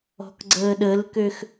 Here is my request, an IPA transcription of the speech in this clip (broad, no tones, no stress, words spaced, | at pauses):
ɔ̤kɡ͡ǀəːɗəlkøx